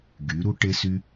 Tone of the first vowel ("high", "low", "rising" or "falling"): rising